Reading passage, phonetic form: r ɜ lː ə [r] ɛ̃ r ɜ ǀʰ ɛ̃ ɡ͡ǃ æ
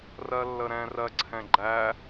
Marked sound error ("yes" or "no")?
yes